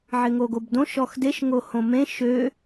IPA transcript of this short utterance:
ʕ ɪ ŋ o ɡ o b d õ ʃ ɔ x d e ʃ ŋ o h õ m ẽ ʃ ø

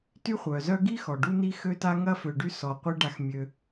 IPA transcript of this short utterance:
t y˦ χʷ œ˩ z œ˦ ɡ i˥ x ɔ˩ ɖ u˦ n i˥ x ø˥ t a˥ ŋ ɐ˦ f ø˨ ɖ y˦ s ɔ˨ qʷ i˥ ɖ a˦ x mʲ ø˦

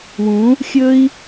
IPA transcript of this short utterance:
w ũ˨˦ | xʲ ɵ˦ i̯

